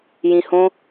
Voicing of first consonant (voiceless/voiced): voiced